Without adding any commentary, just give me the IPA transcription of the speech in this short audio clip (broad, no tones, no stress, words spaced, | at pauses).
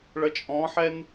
ɭʌt͡ʃʼɔ̃ħɛn